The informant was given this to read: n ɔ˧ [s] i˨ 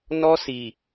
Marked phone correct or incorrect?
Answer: correct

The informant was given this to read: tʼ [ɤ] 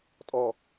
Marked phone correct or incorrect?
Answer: incorrect: ɔ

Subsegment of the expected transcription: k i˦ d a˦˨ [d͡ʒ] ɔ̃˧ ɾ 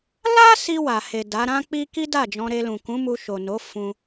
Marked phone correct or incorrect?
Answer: correct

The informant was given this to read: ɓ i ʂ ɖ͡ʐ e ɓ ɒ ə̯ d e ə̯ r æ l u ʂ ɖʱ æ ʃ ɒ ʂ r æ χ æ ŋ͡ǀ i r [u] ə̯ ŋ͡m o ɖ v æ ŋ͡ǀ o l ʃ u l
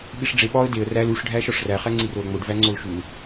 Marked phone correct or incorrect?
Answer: incorrect: o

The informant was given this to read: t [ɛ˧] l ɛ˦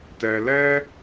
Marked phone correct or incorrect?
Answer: correct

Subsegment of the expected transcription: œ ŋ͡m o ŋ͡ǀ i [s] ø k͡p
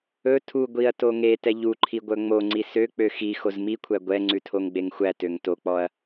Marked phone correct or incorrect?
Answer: correct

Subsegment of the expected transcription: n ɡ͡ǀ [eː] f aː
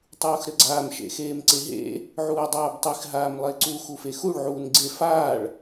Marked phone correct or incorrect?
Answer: incorrect: e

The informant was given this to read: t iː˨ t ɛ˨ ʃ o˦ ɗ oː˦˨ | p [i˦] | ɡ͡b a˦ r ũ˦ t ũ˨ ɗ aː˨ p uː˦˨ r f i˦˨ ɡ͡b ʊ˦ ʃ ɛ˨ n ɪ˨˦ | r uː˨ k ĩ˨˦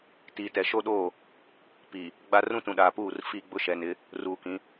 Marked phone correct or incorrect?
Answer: incorrect: i˨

